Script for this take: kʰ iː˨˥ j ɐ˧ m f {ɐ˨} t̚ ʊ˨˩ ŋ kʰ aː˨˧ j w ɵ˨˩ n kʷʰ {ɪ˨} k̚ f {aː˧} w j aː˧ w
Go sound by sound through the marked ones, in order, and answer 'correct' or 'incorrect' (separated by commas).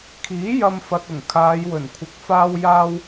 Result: correct, incorrect, correct